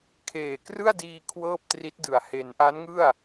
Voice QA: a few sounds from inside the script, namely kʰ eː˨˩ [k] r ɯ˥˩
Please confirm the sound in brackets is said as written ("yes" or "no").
yes